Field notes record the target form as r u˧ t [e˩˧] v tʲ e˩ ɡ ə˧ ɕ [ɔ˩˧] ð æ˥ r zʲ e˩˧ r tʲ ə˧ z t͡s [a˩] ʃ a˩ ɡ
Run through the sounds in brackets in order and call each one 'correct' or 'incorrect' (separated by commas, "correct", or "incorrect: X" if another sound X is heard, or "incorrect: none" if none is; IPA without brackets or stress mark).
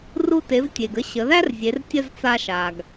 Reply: correct, incorrect: ə˩˧, incorrect: a˧